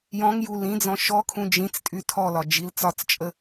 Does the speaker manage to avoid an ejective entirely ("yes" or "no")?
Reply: no